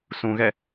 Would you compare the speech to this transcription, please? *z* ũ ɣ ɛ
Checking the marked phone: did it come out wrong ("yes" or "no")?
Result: yes